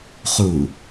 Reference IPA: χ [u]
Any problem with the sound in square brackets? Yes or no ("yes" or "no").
no